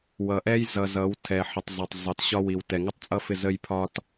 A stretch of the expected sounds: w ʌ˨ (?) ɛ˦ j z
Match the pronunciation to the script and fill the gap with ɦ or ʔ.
ʔ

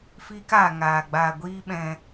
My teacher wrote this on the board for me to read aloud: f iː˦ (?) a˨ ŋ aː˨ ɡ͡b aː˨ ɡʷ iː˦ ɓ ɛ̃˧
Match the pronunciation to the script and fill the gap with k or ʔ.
k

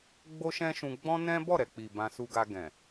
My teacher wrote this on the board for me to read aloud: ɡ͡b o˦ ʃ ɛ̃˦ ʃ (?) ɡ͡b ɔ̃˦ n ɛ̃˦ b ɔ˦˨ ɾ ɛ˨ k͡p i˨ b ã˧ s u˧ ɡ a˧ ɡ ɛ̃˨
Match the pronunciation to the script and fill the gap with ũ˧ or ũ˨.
ũ˧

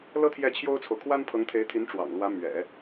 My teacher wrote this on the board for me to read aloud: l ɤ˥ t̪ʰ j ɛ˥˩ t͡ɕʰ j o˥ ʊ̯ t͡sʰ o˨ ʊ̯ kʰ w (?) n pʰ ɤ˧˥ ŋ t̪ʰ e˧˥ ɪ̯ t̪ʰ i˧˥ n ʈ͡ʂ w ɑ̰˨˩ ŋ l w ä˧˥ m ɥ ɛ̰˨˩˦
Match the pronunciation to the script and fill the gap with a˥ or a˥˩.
a˥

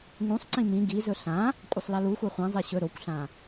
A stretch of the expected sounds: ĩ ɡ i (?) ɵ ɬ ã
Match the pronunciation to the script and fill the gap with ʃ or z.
z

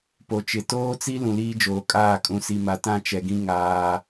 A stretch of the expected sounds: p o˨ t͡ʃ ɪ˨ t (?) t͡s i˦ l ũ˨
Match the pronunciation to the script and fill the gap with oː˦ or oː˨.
oː˦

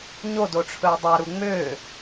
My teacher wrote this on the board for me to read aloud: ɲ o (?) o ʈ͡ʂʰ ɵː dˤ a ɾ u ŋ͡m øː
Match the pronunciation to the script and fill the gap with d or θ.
d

